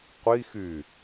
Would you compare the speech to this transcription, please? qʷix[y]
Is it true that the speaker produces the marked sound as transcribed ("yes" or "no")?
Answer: yes